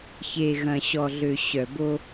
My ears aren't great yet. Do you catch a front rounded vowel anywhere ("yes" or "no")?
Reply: yes